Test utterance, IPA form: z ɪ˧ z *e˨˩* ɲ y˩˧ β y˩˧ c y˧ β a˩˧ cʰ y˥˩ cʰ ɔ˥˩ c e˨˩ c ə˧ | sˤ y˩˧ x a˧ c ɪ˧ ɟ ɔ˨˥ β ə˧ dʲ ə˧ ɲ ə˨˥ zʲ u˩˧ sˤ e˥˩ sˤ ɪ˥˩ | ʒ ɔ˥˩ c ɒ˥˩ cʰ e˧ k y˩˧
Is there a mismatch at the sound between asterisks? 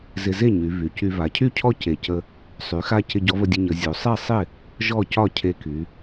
yes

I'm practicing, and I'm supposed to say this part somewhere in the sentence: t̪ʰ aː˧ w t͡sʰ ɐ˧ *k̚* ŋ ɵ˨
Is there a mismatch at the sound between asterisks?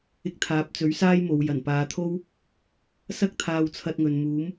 yes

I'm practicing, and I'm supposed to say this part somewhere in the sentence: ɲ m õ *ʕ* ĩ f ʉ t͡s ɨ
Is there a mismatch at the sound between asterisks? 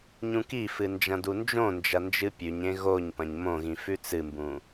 yes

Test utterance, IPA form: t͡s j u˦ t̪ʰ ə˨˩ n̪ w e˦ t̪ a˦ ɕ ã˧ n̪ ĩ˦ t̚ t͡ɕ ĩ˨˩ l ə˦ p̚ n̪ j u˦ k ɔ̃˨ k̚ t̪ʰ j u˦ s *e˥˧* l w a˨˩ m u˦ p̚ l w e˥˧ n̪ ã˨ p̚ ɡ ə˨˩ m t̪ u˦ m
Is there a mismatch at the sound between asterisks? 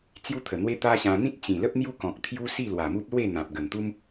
yes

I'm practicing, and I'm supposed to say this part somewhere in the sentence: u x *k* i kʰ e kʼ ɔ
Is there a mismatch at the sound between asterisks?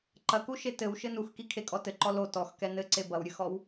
no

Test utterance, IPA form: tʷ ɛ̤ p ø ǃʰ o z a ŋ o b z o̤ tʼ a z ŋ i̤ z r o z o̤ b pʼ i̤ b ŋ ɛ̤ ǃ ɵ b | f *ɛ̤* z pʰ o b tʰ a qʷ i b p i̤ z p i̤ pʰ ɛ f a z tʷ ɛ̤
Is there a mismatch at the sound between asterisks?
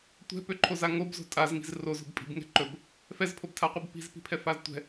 yes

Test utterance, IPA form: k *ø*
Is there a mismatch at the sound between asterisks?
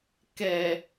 yes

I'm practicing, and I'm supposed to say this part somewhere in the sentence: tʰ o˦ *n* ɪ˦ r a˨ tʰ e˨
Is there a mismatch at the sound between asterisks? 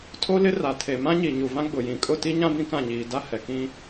yes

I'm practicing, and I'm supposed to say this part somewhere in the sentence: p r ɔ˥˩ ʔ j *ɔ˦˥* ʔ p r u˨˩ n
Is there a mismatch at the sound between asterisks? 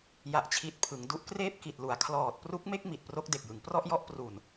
no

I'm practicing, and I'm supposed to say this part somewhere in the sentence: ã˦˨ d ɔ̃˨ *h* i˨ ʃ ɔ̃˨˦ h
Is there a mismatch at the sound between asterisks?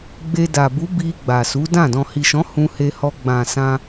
no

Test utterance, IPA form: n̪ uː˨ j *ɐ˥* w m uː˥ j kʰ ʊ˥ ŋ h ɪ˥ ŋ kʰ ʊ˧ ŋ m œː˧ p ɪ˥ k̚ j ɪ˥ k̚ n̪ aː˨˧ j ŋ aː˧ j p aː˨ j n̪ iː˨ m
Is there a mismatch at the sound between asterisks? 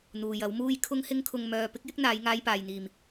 yes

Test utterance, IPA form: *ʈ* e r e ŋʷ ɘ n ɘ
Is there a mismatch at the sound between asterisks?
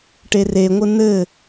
no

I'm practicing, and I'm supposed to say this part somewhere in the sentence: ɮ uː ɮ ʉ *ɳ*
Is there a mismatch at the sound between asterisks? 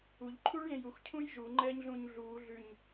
yes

